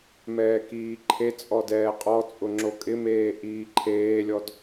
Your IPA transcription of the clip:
m ɛː k iː ǃʰ e t͡sʼ ɔ d ɛː qʼ ɔ t͡sʼ ʊ ŋ͡ǁ o kʼ ɪ m eː ʔ iː ǃʰ eː lʲ ɔ d

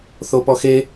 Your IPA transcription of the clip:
θ o p ɔ x e

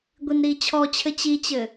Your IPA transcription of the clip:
ɡʷ i n ɾ iː t͡ɕʰ ɔ t͡ɕʰ ɘ t͡ɕ i t͡ɕ ɘ

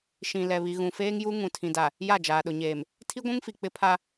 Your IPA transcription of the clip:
ʃ ĩ˨ l ɛ˨ β i˨ ɣ ũ˨ f eː˦ ŋ j u˦ ŋ ũ˨ tʰ ĩ˨ d a˨ | j a˦˨ d͡ʒ aː˨ ɗ ʊ˨ ɲ eː˨ m | tʰ i˦ ɡʷ ũ˦ ŋ f i˨ k͡p ɪ˦ pʰ a˦

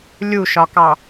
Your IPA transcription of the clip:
lʲ u ʃ ɒ k ɑ

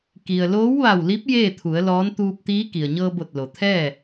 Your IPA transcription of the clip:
k i˩ ə̯ l oː˧˥ w ʋ a˧˩ w l i˧˥ p̚ j eː˥˨ t̪ʰ u˩˧ ə̯ l ɔː˧˥ n t̪ uː˧ p̚ t̪ iː˧˥ k i˩ ə̯ ɲ ɤː˧ b o˧˩ t̚ l o˩ t̪ʰ ɛː˥˨

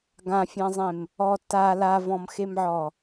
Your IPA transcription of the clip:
ɡ ã fʲ ã zˤ ẽ m | ɔ t a l a v ɔ̃ m x e m ʕ ɔ

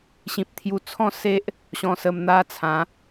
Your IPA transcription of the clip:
ɕ ĩ˨ p̚ t̪ʰ j u˧ t͡sʰ ɔ̃˥˧ s e˦ ʔ | ɕ ɔ̃˧ s ə˧ m n̪ a˦ t͡sʰ ã˨˦

